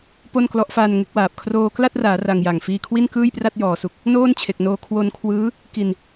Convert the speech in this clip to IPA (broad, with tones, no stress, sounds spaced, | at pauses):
p o˥˩ n k l ɔ˦˥ ʔ f aː˧ n ŋ e˦˥ k̚ w aː˨˩ p̚ kʰ r oː˧ k l a˥˩ t̚ r aː˩˦ r a˧ ŋ j a˨˩ ŋ f iː˧ kʰ w i˥˩ n k ɯː˥˩ j p r a˥˩ t̚ j ɔː˩˦ s u˨˩ k̚ | n oː˥˩ n t͡ɕʰ e˨˩ k̚ n oː˧ kʰ w o˧ n kʰ w ɯː˦˥ | k i˧ n